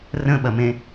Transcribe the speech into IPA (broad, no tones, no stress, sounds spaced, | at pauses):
r ə̃ ɓ ɐ m ẽ